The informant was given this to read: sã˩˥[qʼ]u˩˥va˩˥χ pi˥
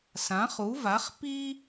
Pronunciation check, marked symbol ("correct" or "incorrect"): incorrect